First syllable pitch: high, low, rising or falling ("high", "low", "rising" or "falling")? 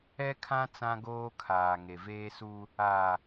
high